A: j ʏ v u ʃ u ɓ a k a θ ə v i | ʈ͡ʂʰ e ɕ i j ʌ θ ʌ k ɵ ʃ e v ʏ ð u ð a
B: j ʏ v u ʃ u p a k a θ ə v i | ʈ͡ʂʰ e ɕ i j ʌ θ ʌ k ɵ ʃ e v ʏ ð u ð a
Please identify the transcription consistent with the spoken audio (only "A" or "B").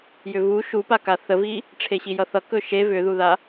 B